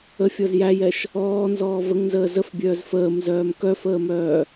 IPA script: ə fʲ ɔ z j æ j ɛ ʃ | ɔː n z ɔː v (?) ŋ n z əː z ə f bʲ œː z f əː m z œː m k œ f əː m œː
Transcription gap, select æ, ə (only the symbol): ə